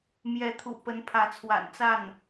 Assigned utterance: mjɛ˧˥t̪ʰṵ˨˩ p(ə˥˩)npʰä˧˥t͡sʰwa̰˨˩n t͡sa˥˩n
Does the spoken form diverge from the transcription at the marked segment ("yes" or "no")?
yes